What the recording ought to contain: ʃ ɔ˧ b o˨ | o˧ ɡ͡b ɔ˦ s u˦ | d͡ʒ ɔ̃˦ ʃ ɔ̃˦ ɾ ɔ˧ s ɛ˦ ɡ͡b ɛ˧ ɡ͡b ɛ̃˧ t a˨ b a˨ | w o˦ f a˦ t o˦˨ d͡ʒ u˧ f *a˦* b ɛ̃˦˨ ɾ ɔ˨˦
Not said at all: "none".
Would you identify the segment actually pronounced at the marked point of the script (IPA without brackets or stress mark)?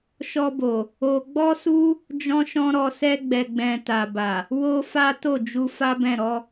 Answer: a˦